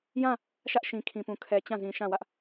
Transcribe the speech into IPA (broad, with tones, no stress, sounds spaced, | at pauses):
j ã˦˨ | ʃ ä˦ ʔ ʃ ĩ˨ kʰ ĩ˨ p ũ˨ kʰ ɛ˨ t͡ɕ ã˦˨ z ĩ˨ ʃ ã˦˨ w ä˦ ʔ